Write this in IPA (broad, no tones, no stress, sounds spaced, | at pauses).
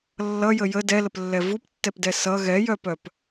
lː ʌ j ə j ə d ɛ l ə p lː ɛ v u p tː ɛ p d ɛ s ʌ ɣ ɛ j œ p œ p